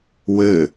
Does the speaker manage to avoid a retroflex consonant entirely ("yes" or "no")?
yes